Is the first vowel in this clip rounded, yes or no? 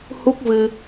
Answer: yes